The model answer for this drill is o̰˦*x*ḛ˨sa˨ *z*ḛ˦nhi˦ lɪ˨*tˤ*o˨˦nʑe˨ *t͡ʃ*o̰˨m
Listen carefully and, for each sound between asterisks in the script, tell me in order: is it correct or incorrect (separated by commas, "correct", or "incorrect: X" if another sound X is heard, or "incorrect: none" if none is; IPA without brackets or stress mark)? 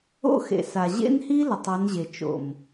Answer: correct, incorrect: ʑ, correct, correct